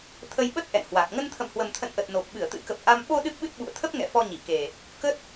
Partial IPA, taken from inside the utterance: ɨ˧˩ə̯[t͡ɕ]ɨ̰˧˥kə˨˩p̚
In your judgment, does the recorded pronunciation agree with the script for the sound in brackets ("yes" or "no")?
no